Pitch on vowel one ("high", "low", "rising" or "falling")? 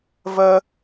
high